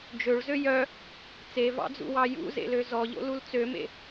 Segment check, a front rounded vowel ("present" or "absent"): present